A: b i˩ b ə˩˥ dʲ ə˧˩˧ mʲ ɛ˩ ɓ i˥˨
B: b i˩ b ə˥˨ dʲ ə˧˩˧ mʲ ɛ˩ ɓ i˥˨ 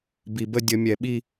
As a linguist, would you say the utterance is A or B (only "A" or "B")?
B